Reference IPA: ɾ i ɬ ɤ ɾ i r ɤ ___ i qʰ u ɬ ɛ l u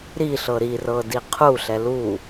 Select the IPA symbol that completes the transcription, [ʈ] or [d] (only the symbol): d